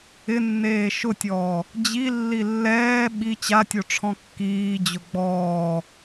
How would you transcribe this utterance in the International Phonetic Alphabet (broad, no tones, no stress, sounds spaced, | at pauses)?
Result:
ɪ nː eː ʃ ʊ tʲ ɔː | d͡ʑ i lː i lː ɛː ɓ i t͡ɕ a tʲ o ʈ͡ʂʰ ɔ̃ kː iː d͡ʑ ʊ ɡ͡b ɔː